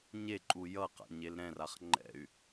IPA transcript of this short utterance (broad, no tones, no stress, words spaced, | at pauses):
ɲeǃʼu jʌqa̰ɲel ɾɛ̃raχ ŋ͡ǃɛ̰y̯